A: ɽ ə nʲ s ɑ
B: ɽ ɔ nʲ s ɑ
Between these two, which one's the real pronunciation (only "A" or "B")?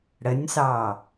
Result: A